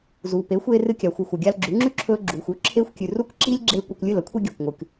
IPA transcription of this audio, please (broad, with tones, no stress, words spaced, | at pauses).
zuː˨ pe˨˦xʷeː˧ rɨ˧kʲa˨xʷɨ˨xʷɐ˨ ɡʲa˧lɡ͡ǁʉ˨˦ŋ͡ǁʉ˦ǁʰɵː˧ ɡ͡ǁuː˨xʷʉ˦ ǁʰeː˧xʷkʲʉ˨ ru˦˨kǁiː˦lʲɡ͡ǁeː˧ kʷɐ˧kʷlʲɨ˦˨l ɐ˦kʷʰi˧ ɡʲɵː˨kʷŋʷɨ˨k